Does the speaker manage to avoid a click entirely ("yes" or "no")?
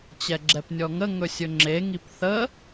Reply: no